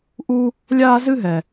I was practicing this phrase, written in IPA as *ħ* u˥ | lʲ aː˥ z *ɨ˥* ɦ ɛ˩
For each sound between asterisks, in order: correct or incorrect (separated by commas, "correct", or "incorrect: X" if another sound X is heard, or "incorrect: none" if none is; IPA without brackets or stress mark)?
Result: incorrect: ʔ, correct